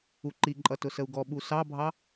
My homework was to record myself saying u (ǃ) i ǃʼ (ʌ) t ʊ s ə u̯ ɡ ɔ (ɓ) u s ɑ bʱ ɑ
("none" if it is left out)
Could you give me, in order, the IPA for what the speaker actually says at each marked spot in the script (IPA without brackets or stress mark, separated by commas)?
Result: ǃ, ʌ, ɓ